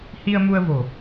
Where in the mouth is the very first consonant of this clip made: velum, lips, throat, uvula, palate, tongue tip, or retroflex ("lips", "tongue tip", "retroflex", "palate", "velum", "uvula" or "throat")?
throat